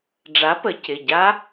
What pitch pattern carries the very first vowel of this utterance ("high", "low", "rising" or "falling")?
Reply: rising